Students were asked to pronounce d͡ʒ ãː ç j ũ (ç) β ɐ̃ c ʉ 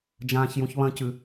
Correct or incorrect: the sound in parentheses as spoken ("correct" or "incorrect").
correct